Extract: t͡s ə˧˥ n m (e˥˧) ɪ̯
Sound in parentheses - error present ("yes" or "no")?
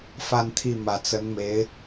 yes